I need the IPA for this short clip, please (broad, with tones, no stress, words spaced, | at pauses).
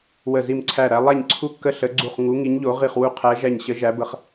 wə˧˩zi˧˩mǀʰæ˧˩ɾæ˨˦ lˠæ˧˩ɲǀʰu˧˩kːə˧˩ ɬə˨˦ɡ͡ǀu˧˩χ ŋu˨˦ ŋi˨˦ɲʎo˨˦ ʁi˧˩χwu˧˩qʰæ˨˦ʒæ˧˩ɲ ɕə˨˦ʒæ˨˦bə˨˦χ